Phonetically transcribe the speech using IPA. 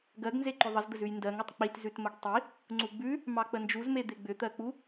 ɡ ɜ ɡ n z e ǃ ʏ ðˤ ə z d̪ ə z ʉ j n d ɜ ŋ ə tˤ k͡p i t z ʉ t m ə ɡ tˤ i | ŋ͡ǀ u ɡ͡b ʉ | m ɑ k͡p ə n d͡ʒ u z m e d̪ e ɡ͡b ʏ t̪ ɜ k͡p u

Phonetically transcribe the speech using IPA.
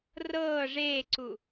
r ɤː ʐ eː ǀ u

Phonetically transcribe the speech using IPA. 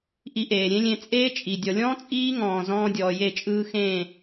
ʔ i˧ ʔ eː˨ ɾʲ ẽ˦ lʲ ẽ˧ t͡sʼ eː˦ t͡ʃʼ i˨ dʲ ɔ˨ lʲ ɔ̃ː˦ t͡sʼ iː˦ ŋ ɔ̃ː˨ z ɔ̃ː˧ dʲ ɔː˨ j e˦˨ t͡ʃʼ ɯː˧ x ẽː˦˨

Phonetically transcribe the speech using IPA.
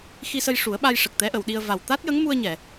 x i˧ s ə˧ j ʂ u˨˩˦ ə̯ ɓ a˧ j ʂ ə˨˩ k̚ t̪ ɛ˧˥ ʔ ə˨˩˨ w ɗ i˧ ə̯ v a˨˩ w t̪ a˦˥ t̚ j ə˧˥ ŋ m u˧ ə̯ ɲ ɛ˨˩˨

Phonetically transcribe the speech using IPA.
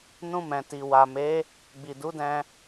n ũ˧ m ɛ̃˨ t i˨ w a˨ m e˨˦ | ɡ͡b i˨ d u˨˦ d ɛ̃˧

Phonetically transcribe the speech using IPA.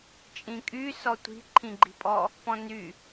t͡ʃʼ ĩ kʼ y s ɔ tʷ i̤ ǃʰ ĩ ɡ͡ǃ i̤ pʼ ɔ | p ɔ̃ n y

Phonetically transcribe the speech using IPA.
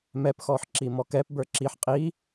m ɛ p x ɔ ħ ǁ i m ɔ k ɛ p b ə˞ ǁ i ħ qʼ i

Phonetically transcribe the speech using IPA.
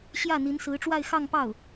ɕ j ä˥˩ n̪ i˧˥ n s ɹ̩˧˥ ʈ͡ʂ w a˥˧ ɪ̯ x ɑ˥˧ ŋ p ɑ˥˩ ʊ̯

